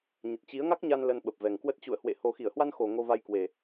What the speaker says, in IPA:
ɲ ə˨˩ t̚ t͡ɕ i˨˦ ə̯ ŋ a˦˥ k̚ ɲ a˧ n l ə˧ n ɓ ə˨˩ p̚ v ɛ˨˩ ŋ k w ə˦˥ t̚ t͡ɕ ṵ˧˨ ə̯ h w ḛ˧˨ h o˨˩ x i˧˩ ə̯ h w a˧ n x o˨˩ ŋ o˧ v a˧ j k w e˨˩

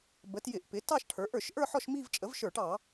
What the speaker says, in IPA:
b ə˩˥ t j ɪ˧˩˧ ʔ p ɪ˩˥ t ɑ˥˧ ʃ ʈʰ ə˞˩˥ ʔ ə˞˧˩˧ ʃ ʔ ə˞˥˧ ħ ɔ˥˧ ʃ m i˥˧ v t͡ʃʼ ə˩˥ v ʃ ə˞˧˩˧ ʈ ɑ˧˩˧

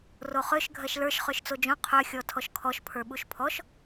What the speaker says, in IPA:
r o χ ø ʃ ɡʱ ɜ ʃ l ə˞ ʃ χ ø ʃ t͡s o d͡ʒ õ qʰ ø xʲ ɔ tʰ ɔ ʃ kʰ ɔ ʃ pʰ ə˞ ɓ u ʃ pʰ ɔ ʃ

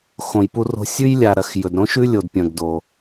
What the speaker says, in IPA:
x õ˩ j p u˧ r o̤˧ sʲ ʉ˥ j lʲ a˩ ɾ ɐ˩ x j ɵ˩ d ɾ õ˥ ʃ ʉ˥ lʲ o˩ d pʲ ɐ̃˩ ɡ d o˩

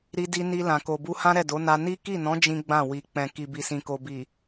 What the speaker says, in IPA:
ɾ i˧ d i˧ n i˧ l ã˨ k o˨ b u˧ h ã˦ ɾ ɛ˦˨ d o˨˦ n a˧ n i˦ k i˦˨ n ɔ̃˨˦ d͡ʒ ĩ˦ ɡ͡b ã˦˨ w i˨ k͡p ɛ̃˨ k i˨ b i˨ s ĩ˨ k o˨ b i˨

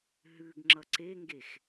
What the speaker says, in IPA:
ɦ ʉ ɡ ŋ͡ǁ ʌ ǀ e ŋ ɡ e x

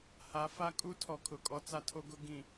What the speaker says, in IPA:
h a˨˦ f a˦ kʼ u˦ tʰ ɔ˨ kʰ ʊ˨ kʼ ɔ˦ t͡s a˦ tʰ o˦ ɡ ʊ˦ ɡ ĩ˨

